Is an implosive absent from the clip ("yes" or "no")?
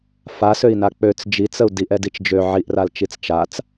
yes